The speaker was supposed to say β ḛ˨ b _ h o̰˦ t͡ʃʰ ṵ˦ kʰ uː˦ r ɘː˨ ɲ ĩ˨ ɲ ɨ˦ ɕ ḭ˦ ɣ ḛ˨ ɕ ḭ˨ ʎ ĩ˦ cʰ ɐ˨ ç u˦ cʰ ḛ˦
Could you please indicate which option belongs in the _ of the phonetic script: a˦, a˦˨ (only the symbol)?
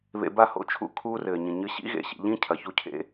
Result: a˦˨